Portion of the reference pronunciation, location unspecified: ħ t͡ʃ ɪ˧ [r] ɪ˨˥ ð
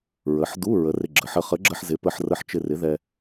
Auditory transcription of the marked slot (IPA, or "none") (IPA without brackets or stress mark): r